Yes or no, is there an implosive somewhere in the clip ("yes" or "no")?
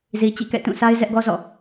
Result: no